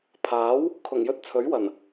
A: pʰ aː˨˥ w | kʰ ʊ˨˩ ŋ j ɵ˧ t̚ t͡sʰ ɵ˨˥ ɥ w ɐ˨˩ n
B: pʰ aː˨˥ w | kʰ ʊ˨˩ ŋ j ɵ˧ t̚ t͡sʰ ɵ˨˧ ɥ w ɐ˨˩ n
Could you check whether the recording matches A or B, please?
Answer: A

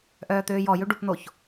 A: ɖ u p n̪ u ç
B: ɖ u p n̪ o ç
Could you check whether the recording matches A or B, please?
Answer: B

